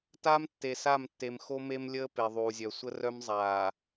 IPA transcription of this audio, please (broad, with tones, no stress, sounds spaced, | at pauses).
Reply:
t aː˦ m tː e˨ s a˦˨ m tː e˨ m x o˦ m e˦ m lʲ əː˦ p e˨ ðˤ uː˨ zʲ œ˨ sʷ ə˦ r œ˦ m zˤ aː˨